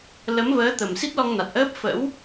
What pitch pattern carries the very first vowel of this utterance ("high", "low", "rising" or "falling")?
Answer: rising